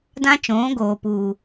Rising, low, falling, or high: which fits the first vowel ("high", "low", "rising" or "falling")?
high